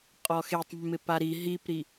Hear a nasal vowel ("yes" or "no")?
no